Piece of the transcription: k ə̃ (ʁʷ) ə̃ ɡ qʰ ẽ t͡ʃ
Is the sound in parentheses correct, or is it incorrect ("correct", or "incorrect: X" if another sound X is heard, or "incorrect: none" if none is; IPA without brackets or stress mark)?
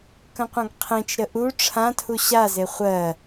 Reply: incorrect: qʷ